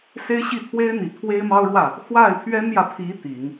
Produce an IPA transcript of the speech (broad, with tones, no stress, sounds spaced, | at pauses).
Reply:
s e˥ ɪ̯ ɕ i˥˩ t̪ʰ w e˥ ɪ̯ n̪ i˨˩ t̪ʰ w e˥ ɪ̯ m ɑ˥ ʊ̯ ɻ w ä˥˩ | x w a˥˩ ɪ̯ pʰ ɥ ɛ˥ n j ä˨ pʰ i˧˥ t̪ i˨˩˦ ŋ